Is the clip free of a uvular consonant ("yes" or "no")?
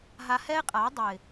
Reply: no